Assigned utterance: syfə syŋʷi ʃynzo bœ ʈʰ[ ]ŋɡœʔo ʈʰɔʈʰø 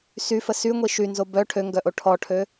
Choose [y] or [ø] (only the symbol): ø